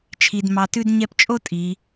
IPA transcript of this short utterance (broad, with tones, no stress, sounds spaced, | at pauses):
t͡ʃʰ i˧ d m ɑ˧ t ʉ˥ d ɲ ɛ˥ p t͡ʃʼ o˥ tʼ i˩˧